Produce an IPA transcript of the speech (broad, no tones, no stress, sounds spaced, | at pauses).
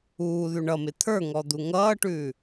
uː ð ʉ ɳ ʌ m ɪ t̪ʰ ə˞ ŋ ɔ d̪ u ŋ ʌː ʈ ʉː